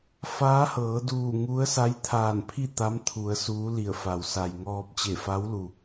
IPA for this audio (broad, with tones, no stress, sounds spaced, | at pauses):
f aː˧˥ h ɤː˩˧ d uː˧˩ ŋ u˧˥ ə̯ s a˧˥ j t̪ʰ aː˧˩ n pʰ i˥˨ t̪ a˧˥ m t̪ʰ u˩˧ ə̯ s uː˧˥ l i˧˩ ə̯ f a˩ w s a˩ j ŋ ɔː˧ p̚ t͡ɕ e˧˩ f a˧˥ w l u˩